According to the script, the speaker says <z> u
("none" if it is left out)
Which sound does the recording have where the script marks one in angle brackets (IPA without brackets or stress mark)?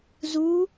z